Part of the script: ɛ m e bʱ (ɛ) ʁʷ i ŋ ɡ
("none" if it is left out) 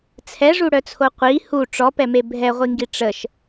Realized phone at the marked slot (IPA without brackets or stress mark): ɛ